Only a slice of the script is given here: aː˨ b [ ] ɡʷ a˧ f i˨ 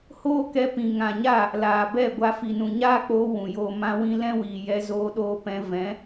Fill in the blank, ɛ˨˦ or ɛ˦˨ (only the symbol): ɛ˦˨